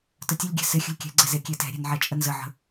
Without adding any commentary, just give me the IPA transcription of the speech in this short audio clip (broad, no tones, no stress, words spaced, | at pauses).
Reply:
tətʲəlʲɡʲɛ̤ sɪ xʲə̤lʲkʲɛ̤ɡ͡ǀɛ zekʲetɛ̤ɾʲɛ̤n ʕɛt͡ʃʼənzəʕə̤